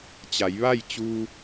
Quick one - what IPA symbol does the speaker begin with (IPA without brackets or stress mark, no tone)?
t͡ɕ